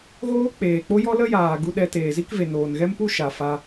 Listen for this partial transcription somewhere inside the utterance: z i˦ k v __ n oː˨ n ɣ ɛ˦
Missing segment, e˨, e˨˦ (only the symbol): e˨